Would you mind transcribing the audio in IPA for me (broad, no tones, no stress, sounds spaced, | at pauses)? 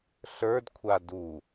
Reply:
ɬ ə˞ d kʷʰ a d u